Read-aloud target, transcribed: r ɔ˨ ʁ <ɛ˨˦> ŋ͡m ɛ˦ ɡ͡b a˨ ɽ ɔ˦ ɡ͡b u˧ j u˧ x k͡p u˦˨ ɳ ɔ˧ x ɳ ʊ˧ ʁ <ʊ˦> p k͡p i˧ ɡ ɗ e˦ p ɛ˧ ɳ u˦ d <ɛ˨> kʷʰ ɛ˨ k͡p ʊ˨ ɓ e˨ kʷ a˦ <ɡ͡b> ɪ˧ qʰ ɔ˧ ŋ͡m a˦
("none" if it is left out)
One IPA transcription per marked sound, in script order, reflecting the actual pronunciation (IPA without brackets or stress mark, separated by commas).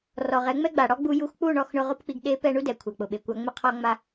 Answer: ɛ˨˦, ʊ˦, ɛ˨, ŋ͡m